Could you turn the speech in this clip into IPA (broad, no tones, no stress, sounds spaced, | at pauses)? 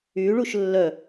y ɭ u ʃ lː œ